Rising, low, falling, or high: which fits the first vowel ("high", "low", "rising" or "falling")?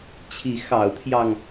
rising